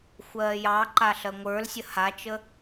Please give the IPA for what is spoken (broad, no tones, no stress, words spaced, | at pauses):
xʷɜːjɑǃa ɬɜŋʷə˞lsʲə hat͡ʃə